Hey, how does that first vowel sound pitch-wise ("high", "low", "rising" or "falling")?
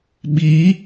rising